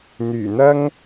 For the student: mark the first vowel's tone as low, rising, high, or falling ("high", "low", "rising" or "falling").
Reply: low